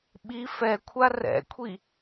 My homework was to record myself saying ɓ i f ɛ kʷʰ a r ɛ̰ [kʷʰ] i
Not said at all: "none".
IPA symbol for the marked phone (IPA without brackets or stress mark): kʷʰ